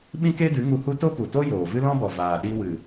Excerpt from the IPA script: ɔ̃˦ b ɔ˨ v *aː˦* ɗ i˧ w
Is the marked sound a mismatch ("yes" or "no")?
yes